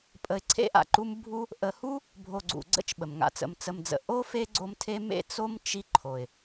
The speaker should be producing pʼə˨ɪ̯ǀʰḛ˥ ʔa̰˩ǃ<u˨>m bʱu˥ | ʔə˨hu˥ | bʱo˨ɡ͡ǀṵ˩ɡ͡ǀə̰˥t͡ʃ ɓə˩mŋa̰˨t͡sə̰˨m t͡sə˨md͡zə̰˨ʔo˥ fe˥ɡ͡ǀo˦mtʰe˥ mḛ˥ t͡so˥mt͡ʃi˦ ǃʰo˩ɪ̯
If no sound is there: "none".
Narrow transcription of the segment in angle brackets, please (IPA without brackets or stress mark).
u˥